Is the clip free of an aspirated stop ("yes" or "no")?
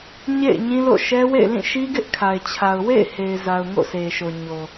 no